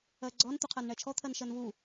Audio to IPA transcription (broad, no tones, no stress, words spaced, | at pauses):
ɜɡ͡ǀɔn t̪uqʰɜnɳɛt͡ʃʰɔ t̪ʰɜnʃɜnvu